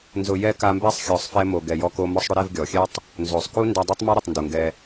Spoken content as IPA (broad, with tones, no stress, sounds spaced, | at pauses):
n z ʊ˨ j ɛ˧ k a˧ m b ɛ˦ sˤ xʲ ɔ˨ sˤ f ɛ˧ m o˨ ɡ ɛ˨ j ɔ˧ k o˧ m ɔ˧ sˤ ɽ ʊ˧ ɾ ɛ˦˨ v ɡʲ ɔ˨ xʲ ɛ˦ tˤ | n z o˨ sˤ k u˦ n d a˧ dˤ o˦ tˤ m a˦ ɾ ʊ˨ tˤ n d u˨ ŋ ɡ ɛ˧